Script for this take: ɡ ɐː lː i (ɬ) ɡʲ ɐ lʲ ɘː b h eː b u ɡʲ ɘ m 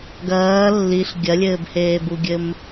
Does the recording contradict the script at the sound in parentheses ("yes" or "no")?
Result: no